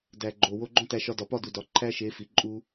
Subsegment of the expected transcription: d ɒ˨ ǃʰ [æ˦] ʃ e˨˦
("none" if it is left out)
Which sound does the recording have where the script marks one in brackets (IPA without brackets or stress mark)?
æ˦